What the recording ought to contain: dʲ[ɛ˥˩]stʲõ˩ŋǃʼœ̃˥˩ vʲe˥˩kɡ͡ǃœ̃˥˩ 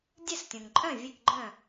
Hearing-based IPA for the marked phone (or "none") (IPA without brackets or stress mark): ɛ˥˩